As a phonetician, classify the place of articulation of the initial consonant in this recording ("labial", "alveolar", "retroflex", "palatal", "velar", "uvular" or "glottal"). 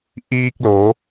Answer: glottal